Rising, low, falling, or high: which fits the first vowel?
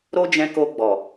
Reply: high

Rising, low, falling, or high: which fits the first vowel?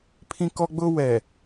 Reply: high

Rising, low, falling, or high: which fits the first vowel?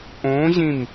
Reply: rising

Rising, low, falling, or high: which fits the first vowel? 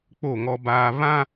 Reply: falling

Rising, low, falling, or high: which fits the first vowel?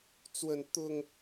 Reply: high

